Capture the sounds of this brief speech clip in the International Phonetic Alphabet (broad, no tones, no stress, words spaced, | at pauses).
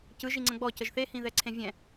cɯʒi ŋ͡ǀə̃ɡ͡bɔcəʒ θehĩðɛ ǀʰẽvʲɛ̃